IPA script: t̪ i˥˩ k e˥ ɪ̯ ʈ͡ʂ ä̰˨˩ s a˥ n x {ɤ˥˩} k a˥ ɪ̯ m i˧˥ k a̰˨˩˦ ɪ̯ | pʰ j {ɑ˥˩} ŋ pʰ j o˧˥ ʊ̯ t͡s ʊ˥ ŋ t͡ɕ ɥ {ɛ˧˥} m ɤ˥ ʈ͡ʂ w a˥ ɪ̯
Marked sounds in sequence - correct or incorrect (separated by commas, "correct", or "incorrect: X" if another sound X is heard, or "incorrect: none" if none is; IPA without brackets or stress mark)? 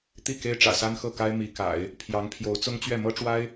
correct, incorrect: ɑ˧˥, incorrect: ɛ˥˩